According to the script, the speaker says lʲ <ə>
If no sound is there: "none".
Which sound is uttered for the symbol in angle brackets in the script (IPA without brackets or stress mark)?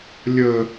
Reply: ə